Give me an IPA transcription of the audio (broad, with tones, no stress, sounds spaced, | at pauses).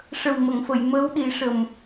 ʂ ə˨˩ w m ə˨˩˨ ŋ f ə˨˩˨ j m əː˧˥ w ɗ i˨˩˦ ʂ ə˨˩ m